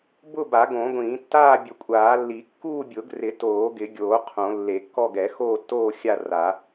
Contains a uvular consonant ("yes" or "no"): yes